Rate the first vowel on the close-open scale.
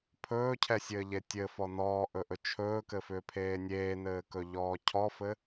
mid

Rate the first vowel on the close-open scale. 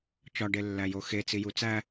open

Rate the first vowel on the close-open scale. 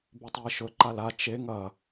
close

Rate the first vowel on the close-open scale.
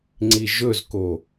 close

